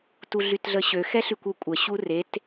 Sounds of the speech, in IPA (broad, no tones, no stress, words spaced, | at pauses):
tuɮytɮəɕø xɛɬykʷøkʷʼə ɕuret